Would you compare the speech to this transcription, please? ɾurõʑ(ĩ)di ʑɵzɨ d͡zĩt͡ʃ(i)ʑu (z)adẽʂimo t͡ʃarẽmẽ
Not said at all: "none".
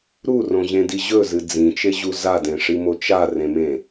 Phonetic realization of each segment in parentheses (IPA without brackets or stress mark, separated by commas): ẽ, e, z